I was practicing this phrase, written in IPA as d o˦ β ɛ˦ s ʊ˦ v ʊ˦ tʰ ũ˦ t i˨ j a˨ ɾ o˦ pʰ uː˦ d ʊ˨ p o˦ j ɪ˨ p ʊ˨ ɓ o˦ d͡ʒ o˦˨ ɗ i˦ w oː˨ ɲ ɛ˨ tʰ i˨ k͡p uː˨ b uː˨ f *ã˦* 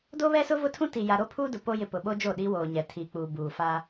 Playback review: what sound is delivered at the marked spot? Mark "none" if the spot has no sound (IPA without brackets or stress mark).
a˦